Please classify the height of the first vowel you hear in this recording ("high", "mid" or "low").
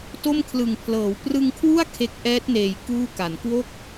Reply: mid